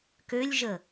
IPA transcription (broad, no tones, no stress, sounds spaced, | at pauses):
k ø lʲ ʒ ə